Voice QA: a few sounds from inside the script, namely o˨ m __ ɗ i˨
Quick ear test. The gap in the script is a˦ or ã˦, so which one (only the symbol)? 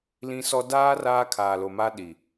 a˦